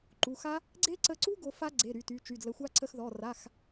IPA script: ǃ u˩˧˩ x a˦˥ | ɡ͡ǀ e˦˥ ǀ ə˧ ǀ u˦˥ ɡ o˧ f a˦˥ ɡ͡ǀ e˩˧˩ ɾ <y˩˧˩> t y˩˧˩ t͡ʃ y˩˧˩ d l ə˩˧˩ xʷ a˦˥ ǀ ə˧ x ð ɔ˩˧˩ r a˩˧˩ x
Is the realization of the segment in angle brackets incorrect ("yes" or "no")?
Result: no